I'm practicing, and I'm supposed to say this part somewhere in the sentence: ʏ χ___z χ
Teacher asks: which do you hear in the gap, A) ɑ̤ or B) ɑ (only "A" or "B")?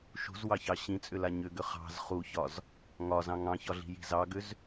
A